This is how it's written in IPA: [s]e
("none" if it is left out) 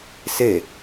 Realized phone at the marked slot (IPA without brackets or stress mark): s